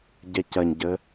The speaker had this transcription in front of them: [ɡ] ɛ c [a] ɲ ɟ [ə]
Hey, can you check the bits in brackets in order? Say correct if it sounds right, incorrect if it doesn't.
incorrect, incorrect, correct

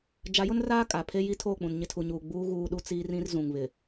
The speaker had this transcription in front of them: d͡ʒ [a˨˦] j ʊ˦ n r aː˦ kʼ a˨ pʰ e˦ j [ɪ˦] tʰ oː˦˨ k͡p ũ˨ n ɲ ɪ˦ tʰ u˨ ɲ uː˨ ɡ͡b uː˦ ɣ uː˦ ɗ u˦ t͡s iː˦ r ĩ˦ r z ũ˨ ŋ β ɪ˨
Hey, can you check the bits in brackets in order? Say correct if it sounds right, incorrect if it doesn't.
correct, incorrect

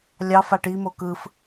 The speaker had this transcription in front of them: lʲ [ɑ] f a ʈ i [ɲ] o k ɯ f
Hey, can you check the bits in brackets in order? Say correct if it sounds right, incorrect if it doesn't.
correct, incorrect

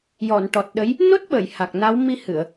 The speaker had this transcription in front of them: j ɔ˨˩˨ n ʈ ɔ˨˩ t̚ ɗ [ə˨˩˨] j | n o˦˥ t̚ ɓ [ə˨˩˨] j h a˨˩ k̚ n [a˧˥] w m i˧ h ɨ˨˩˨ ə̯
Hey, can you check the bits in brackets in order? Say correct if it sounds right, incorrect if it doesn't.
incorrect, correct, correct

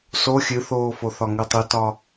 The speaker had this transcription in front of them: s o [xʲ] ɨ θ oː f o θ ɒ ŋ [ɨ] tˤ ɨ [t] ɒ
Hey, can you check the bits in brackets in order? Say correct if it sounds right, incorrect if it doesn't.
correct, correct, correct

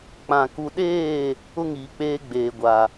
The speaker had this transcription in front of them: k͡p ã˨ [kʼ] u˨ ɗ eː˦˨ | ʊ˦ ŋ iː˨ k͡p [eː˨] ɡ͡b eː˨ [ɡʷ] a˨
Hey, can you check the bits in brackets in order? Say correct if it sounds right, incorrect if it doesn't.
incorrect, incorrect, correct

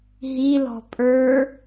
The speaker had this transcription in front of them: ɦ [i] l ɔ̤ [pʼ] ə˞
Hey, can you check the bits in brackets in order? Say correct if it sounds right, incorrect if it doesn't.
correct, correct

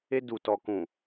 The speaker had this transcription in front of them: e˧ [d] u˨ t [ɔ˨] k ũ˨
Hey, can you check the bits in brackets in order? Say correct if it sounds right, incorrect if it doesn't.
correct, correct

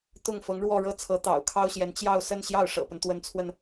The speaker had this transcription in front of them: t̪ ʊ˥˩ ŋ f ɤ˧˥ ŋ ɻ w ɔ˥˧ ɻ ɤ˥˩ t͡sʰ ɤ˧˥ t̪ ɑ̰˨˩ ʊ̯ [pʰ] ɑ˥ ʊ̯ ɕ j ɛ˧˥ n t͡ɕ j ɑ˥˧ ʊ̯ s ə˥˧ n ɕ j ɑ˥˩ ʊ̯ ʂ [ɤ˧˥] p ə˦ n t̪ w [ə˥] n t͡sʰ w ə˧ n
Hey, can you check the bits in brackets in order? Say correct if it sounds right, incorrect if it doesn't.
incorrect, incorrect, incorrect

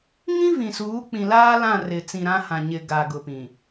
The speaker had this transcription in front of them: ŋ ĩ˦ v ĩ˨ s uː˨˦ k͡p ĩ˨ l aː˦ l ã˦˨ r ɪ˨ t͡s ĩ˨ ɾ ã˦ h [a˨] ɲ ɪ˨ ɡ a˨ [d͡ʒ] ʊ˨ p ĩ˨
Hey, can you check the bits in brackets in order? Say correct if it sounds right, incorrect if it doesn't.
incorrect, incorrect

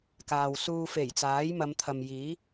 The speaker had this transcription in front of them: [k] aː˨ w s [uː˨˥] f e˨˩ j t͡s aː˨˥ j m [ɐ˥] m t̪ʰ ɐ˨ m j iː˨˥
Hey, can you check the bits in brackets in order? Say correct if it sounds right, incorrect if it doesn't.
correct, incorrect, incorrect

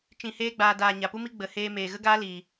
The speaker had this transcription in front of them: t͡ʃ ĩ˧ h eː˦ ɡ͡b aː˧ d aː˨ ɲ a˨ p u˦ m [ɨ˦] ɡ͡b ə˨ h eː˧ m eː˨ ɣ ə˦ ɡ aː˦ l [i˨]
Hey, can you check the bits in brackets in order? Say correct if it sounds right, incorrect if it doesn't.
incorrect, incorrect

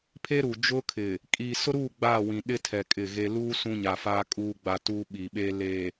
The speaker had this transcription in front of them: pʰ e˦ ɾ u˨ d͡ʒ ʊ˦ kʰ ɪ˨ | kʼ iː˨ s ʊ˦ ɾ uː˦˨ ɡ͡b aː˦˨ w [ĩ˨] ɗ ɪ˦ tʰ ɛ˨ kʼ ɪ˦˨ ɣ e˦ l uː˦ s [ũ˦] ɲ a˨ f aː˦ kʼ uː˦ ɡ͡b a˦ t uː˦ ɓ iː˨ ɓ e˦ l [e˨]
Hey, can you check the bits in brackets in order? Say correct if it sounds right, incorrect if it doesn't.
correct, correct, correct

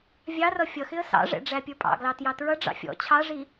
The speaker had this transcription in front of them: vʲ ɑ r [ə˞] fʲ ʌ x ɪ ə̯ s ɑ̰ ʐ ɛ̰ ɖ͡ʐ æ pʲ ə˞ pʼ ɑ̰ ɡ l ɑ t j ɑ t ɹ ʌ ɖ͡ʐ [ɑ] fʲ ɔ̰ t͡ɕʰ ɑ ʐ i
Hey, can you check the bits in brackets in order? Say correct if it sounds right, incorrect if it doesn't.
incorrect, incorrect

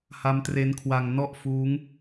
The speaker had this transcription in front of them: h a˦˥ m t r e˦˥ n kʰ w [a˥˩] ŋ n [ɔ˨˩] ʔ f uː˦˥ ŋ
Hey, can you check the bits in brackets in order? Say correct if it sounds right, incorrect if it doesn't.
incorrect, incorrect

